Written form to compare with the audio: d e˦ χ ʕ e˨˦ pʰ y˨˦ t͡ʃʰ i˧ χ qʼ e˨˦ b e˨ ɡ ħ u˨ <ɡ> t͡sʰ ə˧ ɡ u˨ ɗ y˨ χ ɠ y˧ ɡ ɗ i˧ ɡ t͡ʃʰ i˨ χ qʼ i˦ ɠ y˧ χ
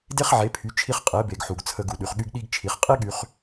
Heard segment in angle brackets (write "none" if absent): ɡ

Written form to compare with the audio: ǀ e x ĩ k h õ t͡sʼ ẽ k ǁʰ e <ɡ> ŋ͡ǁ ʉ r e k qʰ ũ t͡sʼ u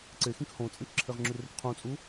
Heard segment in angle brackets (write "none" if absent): ʁ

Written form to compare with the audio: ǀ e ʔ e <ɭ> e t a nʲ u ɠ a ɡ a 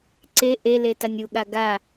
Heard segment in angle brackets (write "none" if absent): l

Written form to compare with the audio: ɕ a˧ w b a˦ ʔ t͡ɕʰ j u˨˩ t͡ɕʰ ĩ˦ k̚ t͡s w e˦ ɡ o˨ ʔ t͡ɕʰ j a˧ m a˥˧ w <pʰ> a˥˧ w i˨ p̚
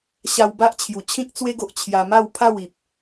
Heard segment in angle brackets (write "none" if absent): pʰ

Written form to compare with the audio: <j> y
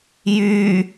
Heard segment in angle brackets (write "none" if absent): j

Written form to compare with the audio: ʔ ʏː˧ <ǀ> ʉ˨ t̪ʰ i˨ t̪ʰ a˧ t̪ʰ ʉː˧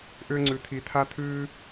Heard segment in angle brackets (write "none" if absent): ŋ͡ǀ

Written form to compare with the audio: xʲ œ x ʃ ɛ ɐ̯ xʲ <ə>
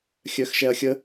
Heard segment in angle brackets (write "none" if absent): ə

